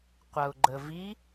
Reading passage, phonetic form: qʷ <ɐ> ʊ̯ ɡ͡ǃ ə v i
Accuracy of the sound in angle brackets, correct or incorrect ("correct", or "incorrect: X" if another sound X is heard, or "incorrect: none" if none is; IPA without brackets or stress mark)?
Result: correct